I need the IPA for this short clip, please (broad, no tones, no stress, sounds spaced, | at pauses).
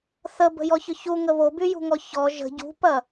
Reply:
θ ə b ə̤ j ɔ ç ʏ ç u ŋ ə β o b y j ṳ ŋ ɔ ç ɔ ʒ ə̤ ɟ ṳ p ɐ